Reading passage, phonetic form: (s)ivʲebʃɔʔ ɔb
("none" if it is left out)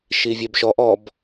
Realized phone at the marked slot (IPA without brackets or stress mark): ʃ